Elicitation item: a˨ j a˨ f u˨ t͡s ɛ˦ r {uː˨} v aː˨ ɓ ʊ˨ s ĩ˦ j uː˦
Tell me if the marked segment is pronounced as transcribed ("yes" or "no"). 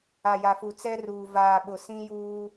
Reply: yes